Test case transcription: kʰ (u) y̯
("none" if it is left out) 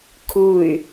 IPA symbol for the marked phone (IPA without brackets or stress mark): u